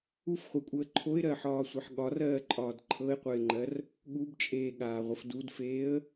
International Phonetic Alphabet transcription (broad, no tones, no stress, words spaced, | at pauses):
ufχʷekʷʼəː ǃʰoɪ̯ɾɜħɒːsʷeħ ɠɒrɜːǃʼɒːd ǃʰɤɪ̯qʷɛɪ̯ŋ͡ǃɜr | ɠubt͡ʃʼeːɠaːʁʷəf dudfeːə̯